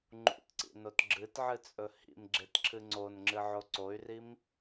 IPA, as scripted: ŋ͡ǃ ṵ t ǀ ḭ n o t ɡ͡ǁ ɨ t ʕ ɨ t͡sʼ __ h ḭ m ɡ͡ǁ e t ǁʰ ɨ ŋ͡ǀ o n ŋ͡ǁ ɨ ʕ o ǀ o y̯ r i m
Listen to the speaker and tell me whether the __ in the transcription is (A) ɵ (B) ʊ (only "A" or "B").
A